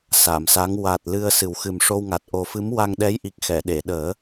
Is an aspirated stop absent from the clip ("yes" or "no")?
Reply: yes